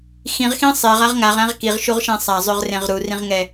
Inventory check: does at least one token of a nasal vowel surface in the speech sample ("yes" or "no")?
yes